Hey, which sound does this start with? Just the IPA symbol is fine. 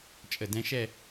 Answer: t͡ʃʼ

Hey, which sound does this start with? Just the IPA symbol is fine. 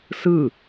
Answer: s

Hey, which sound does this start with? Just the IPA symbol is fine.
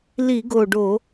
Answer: l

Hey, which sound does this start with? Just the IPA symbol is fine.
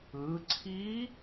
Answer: ɯ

